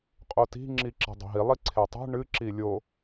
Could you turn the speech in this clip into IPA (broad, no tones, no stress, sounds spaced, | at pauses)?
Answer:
qʼ o t i̤ ŋ͡ǁ i ǁ e̤ dˤ o̤ ɦ i lˠ i ǀʰ e tˤ e̤ ɳ ɨ ǁ i lʲ o